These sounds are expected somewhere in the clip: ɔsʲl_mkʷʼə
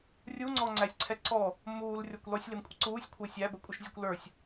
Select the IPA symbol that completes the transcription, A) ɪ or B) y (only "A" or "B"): A